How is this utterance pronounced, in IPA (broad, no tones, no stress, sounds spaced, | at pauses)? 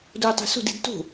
d oː tˤ o̤ s o̤ d i̤ d t o̤